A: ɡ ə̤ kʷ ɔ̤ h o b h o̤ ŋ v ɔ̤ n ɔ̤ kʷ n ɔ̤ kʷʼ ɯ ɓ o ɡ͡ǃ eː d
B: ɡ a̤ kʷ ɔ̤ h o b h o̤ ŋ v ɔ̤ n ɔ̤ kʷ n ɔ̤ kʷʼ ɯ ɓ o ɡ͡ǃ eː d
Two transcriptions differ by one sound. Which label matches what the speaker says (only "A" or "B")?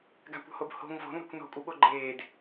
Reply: B